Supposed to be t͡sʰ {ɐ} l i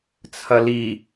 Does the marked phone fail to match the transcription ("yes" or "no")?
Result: no